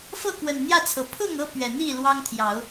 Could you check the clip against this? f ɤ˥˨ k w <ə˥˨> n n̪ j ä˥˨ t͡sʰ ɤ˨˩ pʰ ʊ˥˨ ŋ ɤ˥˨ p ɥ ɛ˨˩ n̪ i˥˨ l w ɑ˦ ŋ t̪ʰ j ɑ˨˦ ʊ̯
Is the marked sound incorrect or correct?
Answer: incorrect